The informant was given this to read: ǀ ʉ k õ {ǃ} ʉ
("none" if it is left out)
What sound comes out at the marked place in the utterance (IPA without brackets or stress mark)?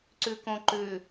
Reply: ǃ